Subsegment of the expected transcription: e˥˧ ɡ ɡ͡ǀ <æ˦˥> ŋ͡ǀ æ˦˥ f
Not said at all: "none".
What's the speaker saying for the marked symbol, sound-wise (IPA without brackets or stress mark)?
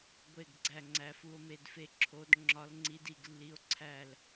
æ˥˧